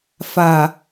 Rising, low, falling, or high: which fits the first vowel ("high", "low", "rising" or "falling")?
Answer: low